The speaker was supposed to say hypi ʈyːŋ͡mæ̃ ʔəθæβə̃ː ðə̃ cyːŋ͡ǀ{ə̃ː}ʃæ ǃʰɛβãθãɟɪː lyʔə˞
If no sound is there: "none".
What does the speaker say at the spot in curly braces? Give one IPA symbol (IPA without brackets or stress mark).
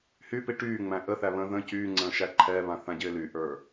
ə̃ː